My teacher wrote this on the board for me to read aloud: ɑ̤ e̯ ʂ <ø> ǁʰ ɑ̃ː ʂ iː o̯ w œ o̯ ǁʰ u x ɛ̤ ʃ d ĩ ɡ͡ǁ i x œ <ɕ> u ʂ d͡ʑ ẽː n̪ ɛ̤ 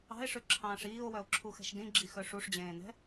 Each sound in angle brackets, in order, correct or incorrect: correct, incorrect: ʂ

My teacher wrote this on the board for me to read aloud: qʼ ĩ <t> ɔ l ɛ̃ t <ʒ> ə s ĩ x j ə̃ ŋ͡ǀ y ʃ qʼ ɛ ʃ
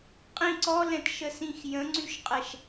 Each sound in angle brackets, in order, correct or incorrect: incorrect: ǀ, incorrect: ʃ

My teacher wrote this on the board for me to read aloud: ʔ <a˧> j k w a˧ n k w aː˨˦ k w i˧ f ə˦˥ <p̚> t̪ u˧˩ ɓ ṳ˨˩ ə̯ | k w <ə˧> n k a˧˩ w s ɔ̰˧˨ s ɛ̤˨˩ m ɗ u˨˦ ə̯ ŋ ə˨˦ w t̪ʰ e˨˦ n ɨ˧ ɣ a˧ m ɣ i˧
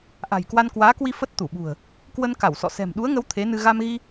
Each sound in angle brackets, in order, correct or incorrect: incorrect: a̤˨˩, incorrect: t̚, correct

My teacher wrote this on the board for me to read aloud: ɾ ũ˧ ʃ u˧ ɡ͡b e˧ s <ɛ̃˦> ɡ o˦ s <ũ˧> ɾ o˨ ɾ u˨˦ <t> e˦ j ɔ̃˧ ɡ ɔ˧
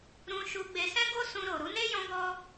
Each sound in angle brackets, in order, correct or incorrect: correct, correct, incorrect: n

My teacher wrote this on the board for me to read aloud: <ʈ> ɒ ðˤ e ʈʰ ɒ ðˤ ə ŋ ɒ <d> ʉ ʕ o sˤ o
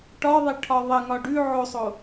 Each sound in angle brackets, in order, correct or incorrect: correct, incorrect: ɖ

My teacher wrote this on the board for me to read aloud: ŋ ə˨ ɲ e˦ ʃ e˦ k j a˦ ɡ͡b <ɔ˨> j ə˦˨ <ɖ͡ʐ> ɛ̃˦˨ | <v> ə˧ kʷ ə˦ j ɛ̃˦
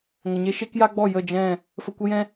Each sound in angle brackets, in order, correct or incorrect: incorrect: ɔ˦˨, incorrect: d͡ʒ, incorrect: f

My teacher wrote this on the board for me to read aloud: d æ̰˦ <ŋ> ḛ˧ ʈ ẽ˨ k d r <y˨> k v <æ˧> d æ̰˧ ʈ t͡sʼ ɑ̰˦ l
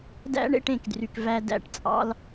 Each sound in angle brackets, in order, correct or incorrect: incorrect: ɳ, correct, correct

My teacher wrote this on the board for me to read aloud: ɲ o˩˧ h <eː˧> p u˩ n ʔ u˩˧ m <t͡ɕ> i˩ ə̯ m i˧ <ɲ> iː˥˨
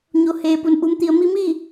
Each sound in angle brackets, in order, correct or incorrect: incorrect: eː˩, incorrect: t̪, incorrect: m

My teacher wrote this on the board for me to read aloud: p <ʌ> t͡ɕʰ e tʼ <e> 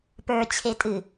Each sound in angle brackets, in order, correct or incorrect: incorrect: ə˞, incorrect: ɨ

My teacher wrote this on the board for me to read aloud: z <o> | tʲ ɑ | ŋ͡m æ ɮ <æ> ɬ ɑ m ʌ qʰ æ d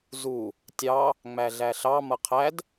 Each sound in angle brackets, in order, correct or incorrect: incorrect: u, correct

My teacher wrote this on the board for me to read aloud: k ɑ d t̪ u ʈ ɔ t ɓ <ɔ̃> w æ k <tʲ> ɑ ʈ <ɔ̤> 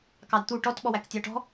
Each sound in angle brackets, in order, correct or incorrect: incorrect: ɔ, correct, correct

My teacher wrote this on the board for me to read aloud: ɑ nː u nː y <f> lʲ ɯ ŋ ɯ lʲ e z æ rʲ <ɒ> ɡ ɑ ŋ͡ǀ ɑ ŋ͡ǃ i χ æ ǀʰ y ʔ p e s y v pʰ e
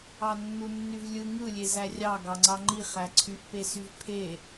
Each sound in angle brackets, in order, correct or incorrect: incorrect: v, incorrect: ɑ

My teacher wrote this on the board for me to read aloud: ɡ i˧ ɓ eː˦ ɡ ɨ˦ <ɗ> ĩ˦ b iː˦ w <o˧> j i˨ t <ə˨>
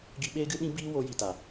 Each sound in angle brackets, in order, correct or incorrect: correct, correct, incorrect: a˨

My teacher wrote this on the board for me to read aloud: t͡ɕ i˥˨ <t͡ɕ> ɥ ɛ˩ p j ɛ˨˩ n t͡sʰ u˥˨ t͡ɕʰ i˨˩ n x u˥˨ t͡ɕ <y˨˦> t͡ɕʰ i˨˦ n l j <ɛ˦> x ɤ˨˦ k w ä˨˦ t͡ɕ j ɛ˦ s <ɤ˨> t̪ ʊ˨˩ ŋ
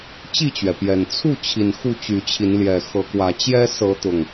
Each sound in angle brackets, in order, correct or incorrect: correct, correct, incorrect: ɛ˨˩, incorrect: ɤ˨˦

